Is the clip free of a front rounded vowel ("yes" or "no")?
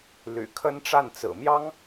no